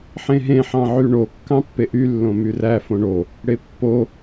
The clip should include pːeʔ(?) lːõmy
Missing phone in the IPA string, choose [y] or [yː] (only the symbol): y